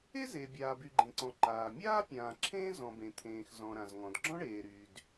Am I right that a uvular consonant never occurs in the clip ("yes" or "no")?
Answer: yes